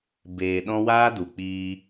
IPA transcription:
b eː˨ ɗ ɔ̃˦ w aː˦ d u˨ k͡p iː˧

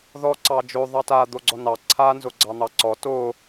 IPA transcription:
ð ɔ ǀ ɑ d͡ʒ o ðˤ ɑ t a d̪ o ɡ͡ǀ ɔ n ɑ ǀʰ a n z o ɡ͡ǀ ɑ n̪ ɑ ǀ ɔ t o

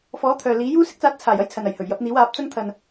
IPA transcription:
f ɔː˨˥ t̪ʰ œː˨ l iː˨˥ j uː˧ s ɪ˧ k̚ t͡s aː˨˥ t̚ t͡sʰ aː˨˩ j ɐ˥ j t͡sʰ ɐ˨ n ɐ˨˩ j h ɵ˨˩ ɥ j ɐ˨˥ p̚ n̪ iː˨˥ w aː˨˥ p̚ t͡s ɐ˧ ŋ t̪ʰ ɐ˨ n

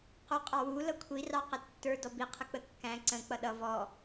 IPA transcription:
q u qʼ ɑ w u l ʌ kʷʰ i r ɑ q ə tː ə˞ d ɔ b i qʰ ə k͡p ə kː æ̃ ǀ ə̃ k͡p ʌ ɗ ʌ v ɔ

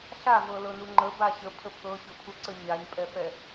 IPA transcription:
ɬ a v ɤ l ɤ n u ŋ͡ǃ ə b a ɕ ə pʰ ə pʰ ɤ ɕ ʊ pʰ u ǀ ə ɲ a ɲ pʼ ɛ f ɛ

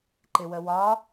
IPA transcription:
ǃ ɪ w ə w ɒ

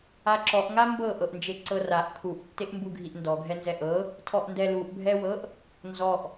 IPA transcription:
a ǁ ɔ ʔ ŋ a m b ɤ ʔ ɤ ʔ n d͡ʒ e ǀ ɤ r a ʔ kʰ u ʔ tː e ʔ m b u ɡʱ i ʔ n d ɔ ɡʱ ɛ n z ɛ ʔ ɤ | tʰ ɔ ʔ n d ɛ l u ʔ bʱ ɛ w ɤ ʔ | n z ɔ ʔ

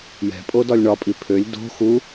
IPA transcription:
j ɛ̤ pʼ o d ɒ lʲ ɳ ɒ pʼ i pʰ ø lʲ d o̤ x u

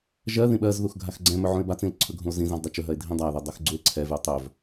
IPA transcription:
ʒ ɜ ð ĩ ɓ ɜ z ð u x ɡʱ a x ɡ͡ǀ ɛ̃ m ɵ ʕ ũ e̯ b a t͡s ĩ l ǀʰ ɵ ɡʱ ũ o̯ z ĩ z ã z dˤ ɛ t͡ʃ ɵ ɦ ɜ e̯ dʱ ĩ dˤ a o̯ ð ɛ dˤ ɜ x ɡ͡ǀ u e̯ ǀʰ ɛ v y o̯ tˤ ɵ v

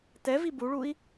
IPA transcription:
t ɛ v i b u ɭ u i̯

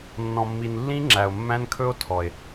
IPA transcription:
nː ɔ̃˨ mː i˨ n lː ĩ˦ ŋ͡ǁ æ˨ o̯ mː æ̃˦ n kʰ ɵ˦ o̯ tʰ ɔ˨ e̯

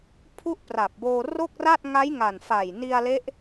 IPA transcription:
pʰ u˥˩ ʔ p r a˨˩ p̚ b oː˧ r o˥˩ k̚ r a˥˩ t̚ ŋ a˦˥ j ŋ a˨˩ n f a˨˩ j n i˧ a̯ l e˦˥ ʔ

